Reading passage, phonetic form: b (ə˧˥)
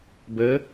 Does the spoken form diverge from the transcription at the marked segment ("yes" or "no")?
no